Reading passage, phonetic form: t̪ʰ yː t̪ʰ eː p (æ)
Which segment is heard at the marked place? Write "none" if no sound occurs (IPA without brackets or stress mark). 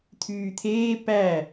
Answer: æ